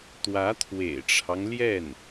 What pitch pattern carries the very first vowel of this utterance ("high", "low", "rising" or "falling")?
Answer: rising